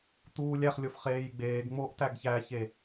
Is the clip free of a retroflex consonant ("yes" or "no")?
yes